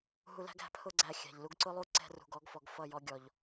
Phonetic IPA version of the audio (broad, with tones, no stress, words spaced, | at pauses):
ɦu˧læ̤˦ɡ æ̤˨pʰʊ˦ɡ͡ǀæ˧ xʲæ̤˨ʎlu˧ɡǀʊ˦lˠu˦ ǀɛ̤˧rṳ˨ɡɔ˨˦ɡfɔ˨ɡ fʌ˦˨jɔ˧ ɡʲɔ˨ʎ